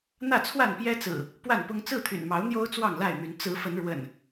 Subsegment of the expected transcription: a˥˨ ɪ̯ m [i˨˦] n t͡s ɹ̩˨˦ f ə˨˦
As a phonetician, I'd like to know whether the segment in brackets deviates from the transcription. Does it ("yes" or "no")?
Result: yes